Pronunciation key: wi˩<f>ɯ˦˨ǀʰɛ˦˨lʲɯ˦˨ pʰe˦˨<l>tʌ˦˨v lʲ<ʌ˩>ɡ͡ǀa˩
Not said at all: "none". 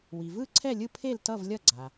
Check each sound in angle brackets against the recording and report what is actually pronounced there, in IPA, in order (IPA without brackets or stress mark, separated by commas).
v, l, ʌ˦˨